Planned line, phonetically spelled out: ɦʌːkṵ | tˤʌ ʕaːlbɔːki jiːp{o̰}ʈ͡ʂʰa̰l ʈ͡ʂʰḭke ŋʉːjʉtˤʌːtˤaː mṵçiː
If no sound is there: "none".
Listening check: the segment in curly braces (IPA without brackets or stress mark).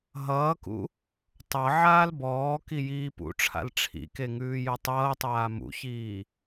ṵ